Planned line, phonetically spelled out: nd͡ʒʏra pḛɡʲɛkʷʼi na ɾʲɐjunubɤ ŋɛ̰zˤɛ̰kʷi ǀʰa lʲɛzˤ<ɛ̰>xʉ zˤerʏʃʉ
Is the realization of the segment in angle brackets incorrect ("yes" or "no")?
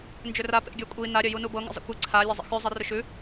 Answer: yes